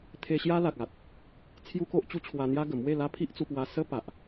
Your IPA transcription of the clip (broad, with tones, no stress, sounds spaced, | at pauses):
t̪ʰ e˧ ɕ j a˦ l a˨ k̚ a˨ t̚ | t͡sʰ j u˦ k o˦ ʔ t͡ɕ u˦ t͡ɕʰ w a˧ n̪ j a˦ ɡ ə˨˩ m w e˥˧ l a˦ pʰ i˦ ʔ t͡s u˧ p w a˧ s ə˦ p a˨ ʔ